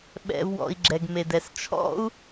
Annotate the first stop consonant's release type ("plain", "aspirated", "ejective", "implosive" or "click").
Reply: implosive